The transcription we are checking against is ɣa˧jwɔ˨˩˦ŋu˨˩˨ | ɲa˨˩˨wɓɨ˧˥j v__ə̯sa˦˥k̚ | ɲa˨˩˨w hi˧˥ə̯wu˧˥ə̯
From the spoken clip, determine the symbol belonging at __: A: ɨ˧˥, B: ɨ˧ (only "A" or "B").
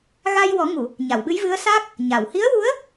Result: A